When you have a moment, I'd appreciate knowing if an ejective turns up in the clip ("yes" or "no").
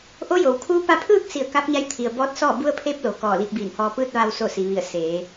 no